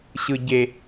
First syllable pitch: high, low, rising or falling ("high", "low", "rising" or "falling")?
low